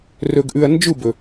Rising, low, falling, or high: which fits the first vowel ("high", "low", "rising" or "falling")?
low